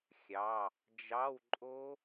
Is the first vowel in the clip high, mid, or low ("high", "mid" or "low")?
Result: low